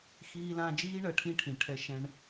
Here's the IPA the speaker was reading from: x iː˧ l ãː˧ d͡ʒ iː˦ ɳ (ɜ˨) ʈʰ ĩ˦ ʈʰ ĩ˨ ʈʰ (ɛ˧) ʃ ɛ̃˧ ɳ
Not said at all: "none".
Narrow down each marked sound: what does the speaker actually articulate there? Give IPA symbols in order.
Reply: ɜ˨, ɛ˧

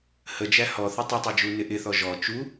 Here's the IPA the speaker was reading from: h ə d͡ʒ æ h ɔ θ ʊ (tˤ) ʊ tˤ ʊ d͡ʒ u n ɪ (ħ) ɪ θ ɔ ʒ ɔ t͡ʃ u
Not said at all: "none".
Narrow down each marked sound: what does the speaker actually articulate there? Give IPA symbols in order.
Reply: tˤ, ʔ

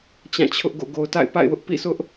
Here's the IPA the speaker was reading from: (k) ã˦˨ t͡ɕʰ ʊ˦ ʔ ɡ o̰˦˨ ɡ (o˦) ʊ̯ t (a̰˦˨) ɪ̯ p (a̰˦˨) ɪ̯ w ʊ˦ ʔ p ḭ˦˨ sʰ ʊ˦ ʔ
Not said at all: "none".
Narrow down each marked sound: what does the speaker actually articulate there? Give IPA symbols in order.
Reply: t͡ɕ, o˨, a̰˦˨, a̰˦˨

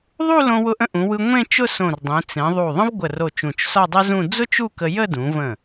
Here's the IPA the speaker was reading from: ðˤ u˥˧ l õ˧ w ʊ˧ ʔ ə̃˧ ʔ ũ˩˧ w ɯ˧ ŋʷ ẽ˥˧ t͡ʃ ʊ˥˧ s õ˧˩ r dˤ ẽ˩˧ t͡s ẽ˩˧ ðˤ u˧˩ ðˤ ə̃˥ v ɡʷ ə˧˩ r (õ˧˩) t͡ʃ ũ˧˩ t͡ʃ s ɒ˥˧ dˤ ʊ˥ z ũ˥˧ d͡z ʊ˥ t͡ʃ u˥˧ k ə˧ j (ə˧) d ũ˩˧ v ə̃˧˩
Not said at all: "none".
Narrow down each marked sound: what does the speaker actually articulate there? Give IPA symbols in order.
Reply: o˧˩, ə˥˧

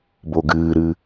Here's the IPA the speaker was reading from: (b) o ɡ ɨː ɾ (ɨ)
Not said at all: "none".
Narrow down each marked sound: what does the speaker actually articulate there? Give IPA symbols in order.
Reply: b, ɨ

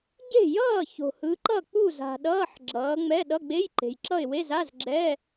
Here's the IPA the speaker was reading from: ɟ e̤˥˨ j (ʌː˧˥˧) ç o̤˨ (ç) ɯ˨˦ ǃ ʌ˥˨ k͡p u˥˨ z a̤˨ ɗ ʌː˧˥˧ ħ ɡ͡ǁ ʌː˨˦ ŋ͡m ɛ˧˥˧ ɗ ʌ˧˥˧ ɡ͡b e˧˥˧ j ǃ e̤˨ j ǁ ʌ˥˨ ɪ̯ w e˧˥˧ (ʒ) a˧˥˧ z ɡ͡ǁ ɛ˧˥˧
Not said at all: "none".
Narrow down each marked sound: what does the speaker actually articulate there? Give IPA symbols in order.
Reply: ʌː˥˨, h, z

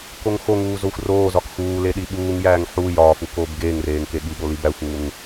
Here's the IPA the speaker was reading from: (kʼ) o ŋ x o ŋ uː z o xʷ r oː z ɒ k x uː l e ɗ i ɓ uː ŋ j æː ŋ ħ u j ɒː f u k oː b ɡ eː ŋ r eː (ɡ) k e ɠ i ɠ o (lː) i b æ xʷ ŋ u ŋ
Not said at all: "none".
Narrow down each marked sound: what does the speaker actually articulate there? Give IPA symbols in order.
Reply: k, ŋ, l

